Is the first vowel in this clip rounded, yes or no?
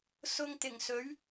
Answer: yes